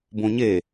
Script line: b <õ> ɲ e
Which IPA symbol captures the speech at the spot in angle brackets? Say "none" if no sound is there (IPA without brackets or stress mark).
õ